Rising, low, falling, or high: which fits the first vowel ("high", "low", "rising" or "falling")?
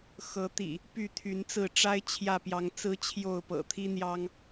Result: rising